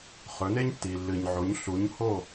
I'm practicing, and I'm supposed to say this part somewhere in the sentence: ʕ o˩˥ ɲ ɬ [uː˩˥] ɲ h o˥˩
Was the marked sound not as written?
yes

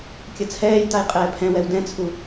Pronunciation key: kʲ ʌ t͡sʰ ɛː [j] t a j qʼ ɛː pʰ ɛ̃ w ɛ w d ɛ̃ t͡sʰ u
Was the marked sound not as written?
no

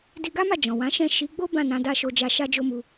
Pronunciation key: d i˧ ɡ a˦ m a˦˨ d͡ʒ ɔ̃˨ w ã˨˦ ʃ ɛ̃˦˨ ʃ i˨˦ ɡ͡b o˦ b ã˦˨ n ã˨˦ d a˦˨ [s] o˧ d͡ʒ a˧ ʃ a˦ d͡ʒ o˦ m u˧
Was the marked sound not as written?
yes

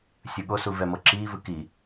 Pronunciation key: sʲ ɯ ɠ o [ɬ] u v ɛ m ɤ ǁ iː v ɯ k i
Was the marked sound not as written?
yes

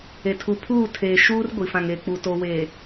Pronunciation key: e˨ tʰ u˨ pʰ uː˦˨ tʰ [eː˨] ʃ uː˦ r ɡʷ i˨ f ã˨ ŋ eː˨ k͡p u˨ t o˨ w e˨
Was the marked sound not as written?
no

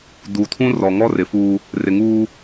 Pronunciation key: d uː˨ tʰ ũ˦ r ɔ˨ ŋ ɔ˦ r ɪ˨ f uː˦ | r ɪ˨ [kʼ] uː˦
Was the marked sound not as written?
yes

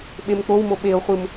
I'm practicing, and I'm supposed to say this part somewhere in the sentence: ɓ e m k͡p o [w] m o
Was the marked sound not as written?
no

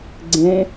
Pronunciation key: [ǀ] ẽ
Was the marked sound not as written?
yes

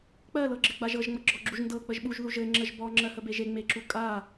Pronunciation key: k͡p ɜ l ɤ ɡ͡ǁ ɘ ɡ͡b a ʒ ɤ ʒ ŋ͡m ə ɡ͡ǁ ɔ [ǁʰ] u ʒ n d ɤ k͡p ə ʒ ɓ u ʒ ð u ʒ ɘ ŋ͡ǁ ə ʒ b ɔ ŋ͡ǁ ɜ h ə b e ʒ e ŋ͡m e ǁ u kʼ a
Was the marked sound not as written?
yes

